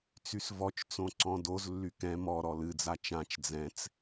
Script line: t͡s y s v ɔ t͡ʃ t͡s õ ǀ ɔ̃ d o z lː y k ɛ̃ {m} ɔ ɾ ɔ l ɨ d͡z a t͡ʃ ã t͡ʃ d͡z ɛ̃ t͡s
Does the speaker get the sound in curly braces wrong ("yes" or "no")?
no